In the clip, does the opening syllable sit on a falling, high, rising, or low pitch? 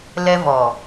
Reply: high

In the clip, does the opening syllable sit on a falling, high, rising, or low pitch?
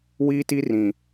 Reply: high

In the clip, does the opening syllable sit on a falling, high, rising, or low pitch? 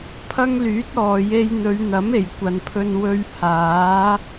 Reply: high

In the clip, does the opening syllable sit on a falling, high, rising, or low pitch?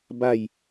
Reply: falling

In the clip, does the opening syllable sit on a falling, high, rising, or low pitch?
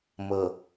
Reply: low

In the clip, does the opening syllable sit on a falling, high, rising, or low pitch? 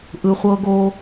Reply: low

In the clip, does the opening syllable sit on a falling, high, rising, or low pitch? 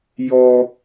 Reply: high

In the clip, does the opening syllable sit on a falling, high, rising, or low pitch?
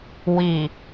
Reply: low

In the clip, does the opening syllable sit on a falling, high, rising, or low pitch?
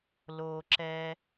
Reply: low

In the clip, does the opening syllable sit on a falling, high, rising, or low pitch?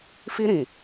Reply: high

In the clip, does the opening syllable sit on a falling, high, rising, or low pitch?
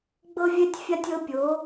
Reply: high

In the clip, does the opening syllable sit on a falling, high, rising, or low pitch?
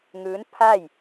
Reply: rising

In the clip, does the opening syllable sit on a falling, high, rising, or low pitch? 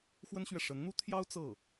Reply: high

